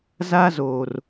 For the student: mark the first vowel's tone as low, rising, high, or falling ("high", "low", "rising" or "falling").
high